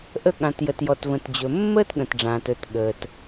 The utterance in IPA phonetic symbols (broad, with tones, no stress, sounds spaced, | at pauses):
ʔ ə˨ ɠ ã˩ t j ə˩ t j ɔ˩ t v ə̃˩ t d͡ʑ ɵ˩ mː əː˦ t ɠ ə̃˩ t ɖ͡ʐ ãː˩ t ɵ˩ t ɠ əː˩ t